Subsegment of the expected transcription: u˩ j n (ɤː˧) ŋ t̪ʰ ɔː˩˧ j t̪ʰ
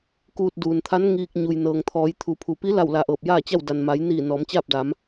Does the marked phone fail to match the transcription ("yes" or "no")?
yes